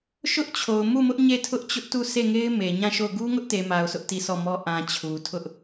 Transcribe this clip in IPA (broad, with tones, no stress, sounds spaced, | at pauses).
ʃ ʊ˦ ʔ t͡ɕʰ o˨ ʊ̯ m u˦˨ m ʊ˦ ʔ ɲ e˦˨ tʰ ʊ˦ ʔ t͡ɕ ʊ˦ ʔ t u˦˨ sʰ e˦˨ ŋ e˦ ɪ̯ m e˨ ɲ ã˦˨ ʃ o˦˨ ʊ̯ ɡ u˦ ŋ ʊ˦ ʔ t e˨ m a˨ ʊ̯ sʰ ʊ˦ ʔ t i˦˨ sʰ ɔ˦˨ m ɔ˦ ʔ ã˨ t͡ɕʰ u˨ tʰ ʊ˦ ʔ